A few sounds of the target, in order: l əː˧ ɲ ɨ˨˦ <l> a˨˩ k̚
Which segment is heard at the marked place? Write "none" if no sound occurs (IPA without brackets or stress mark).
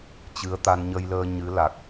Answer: l